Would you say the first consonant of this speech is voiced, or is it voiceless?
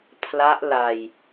voiceless